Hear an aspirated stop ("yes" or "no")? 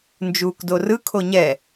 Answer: yes